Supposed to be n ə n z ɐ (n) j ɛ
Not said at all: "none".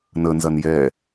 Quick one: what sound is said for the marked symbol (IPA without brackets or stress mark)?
n